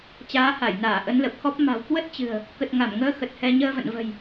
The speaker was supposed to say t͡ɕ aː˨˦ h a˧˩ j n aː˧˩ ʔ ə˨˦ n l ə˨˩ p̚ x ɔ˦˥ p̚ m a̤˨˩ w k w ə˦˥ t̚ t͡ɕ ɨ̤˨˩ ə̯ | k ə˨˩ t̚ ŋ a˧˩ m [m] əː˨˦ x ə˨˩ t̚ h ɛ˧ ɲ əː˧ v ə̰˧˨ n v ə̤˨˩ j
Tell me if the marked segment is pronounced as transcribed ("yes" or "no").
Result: no